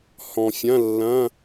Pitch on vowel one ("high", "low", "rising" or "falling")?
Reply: low